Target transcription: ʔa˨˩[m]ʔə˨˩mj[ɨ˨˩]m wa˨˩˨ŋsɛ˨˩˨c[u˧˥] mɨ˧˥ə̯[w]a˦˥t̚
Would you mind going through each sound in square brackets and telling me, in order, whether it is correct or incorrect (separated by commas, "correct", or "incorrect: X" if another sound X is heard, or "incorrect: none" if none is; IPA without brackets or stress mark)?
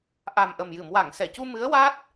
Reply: correct, incorrect: ɨ˨˩˨, incorrect: u˧, correct